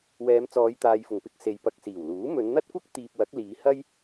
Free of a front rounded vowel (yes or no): yes